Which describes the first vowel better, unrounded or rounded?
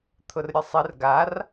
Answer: rounded